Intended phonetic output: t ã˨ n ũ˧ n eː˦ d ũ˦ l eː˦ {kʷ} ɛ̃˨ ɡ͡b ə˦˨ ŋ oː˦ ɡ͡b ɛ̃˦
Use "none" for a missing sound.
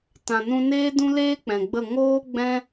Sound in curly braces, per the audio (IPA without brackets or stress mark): k͡p